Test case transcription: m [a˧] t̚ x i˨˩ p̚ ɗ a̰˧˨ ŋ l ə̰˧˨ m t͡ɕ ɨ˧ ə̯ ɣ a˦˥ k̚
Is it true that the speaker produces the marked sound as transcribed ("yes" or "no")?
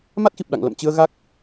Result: no